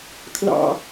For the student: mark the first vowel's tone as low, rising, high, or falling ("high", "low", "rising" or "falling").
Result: high